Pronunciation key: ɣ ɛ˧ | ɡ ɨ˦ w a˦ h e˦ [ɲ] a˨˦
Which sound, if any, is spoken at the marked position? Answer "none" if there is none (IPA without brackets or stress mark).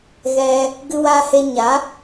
ɲ